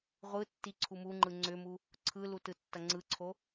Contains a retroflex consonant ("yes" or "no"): no